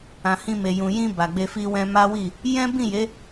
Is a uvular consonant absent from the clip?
yes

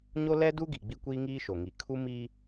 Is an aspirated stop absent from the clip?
no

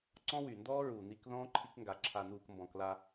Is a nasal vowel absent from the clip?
no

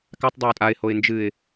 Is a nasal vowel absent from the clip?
yes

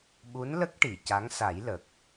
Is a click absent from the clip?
yes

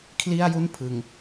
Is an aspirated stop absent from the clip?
no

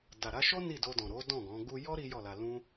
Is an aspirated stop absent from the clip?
yes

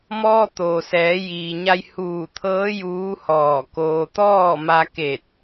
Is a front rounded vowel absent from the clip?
yes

